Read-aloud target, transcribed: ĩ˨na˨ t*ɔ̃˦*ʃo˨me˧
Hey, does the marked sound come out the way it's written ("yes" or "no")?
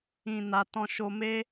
no